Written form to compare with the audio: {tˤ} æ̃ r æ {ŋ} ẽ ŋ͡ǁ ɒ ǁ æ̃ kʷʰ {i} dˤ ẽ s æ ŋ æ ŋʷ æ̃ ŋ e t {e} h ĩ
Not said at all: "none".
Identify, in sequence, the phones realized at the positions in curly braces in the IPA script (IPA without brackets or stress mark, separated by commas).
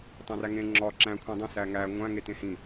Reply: tˤ, ŋ, ĩ, ẽ